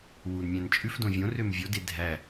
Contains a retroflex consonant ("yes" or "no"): no